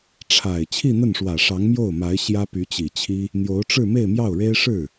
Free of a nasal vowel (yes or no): yes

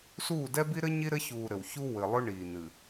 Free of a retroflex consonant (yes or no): no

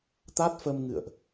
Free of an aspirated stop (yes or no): yes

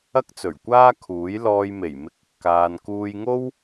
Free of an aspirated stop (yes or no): no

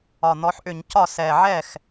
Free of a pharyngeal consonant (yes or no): no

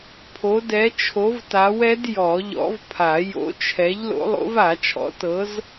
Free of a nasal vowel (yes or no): yes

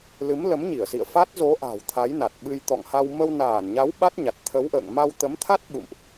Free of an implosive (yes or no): no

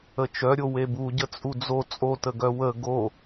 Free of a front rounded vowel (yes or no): no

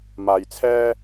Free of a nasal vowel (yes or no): yes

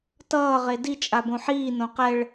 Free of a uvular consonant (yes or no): no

